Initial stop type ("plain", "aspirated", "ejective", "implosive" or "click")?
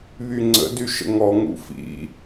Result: click